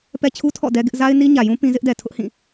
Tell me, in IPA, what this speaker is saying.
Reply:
pɛ˦t͡ɕʰu˦ tʰɔ̰˦˨ dɛ˦ ɡɪ˦ʔ za˦ɪ̯ni˦ɲä˨jũ˦ pĩ˦ zɪ˦ʔdɛ˨tʰʊ˦ʔhĩ˦˨

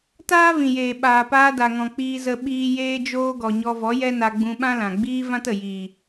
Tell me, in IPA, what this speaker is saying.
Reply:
taː˦vĩ˨jeː˨ ɓaː˨paː˧da˨ŋɔ̃˨ k͡piː˧zə˧ ɓiː˧ jeː˧d͡ʒoː˧ɡɔ˨ ɲɔ˧vɔ˨˦jɛ˦na˧ ɡ͡bũ˧ɓã˦lã˨ ɡ͡biː˦ vã˦tə˨ jiː˨

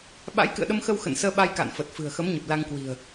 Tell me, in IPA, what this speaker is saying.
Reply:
ɓa̰˧˥jkɨ̰˧˨ə̯ɗə˧mxə˧w xə̰˧˨n səː˧ɓa˧jka̰ː˧˨n fə˨˩t̚fɨ̤˨˩ə̯ xə˨˦mɲə˨˩p̚ la˧ŋkwi̤˨˩ə̯

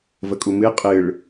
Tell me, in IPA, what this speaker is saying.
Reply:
vəkʼumɨ qʼɨɭ

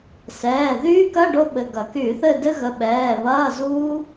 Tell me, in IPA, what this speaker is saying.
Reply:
sɛː˩˧˩ðyː˦˥kɐ˧˥˧ ɖo˦˥ɓɘ˩˧˩ɡɐ˧˩˧ ky˧˩˧θɘ˦˨ dɘ˦˥ɣə˩˧˩ɓɛː˩˧˩ βɐː˧˥˧zuː˦˥

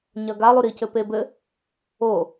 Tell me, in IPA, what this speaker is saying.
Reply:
ɲɐɡa lˠuɾicɘ pebɘ | o

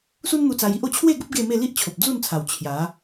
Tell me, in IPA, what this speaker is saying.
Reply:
su˦nn̪u˧t͡sa˧ji˦ʔ o˧t͡ɕʰwe˥˧ɡə˦p̚ ɡe˥˧me˥˧ li˦ʔt͡ɕʰo˨p̚d͡zu˥˧nt͡sʰa˨˩w t͡ɕʰja˨˦

